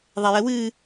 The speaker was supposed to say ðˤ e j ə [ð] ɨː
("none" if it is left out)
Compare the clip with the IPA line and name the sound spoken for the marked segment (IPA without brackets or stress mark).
w